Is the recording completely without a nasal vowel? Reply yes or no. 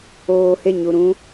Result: no